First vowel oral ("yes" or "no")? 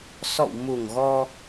yes